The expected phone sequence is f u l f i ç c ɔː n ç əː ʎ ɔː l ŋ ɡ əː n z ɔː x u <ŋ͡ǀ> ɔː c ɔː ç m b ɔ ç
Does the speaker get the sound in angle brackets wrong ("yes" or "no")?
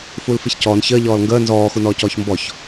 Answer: yes